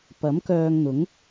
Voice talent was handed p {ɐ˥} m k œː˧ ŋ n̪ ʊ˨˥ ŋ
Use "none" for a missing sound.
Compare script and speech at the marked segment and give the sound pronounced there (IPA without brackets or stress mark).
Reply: ɐ˨˥